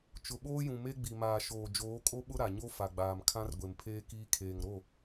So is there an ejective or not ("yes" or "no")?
yes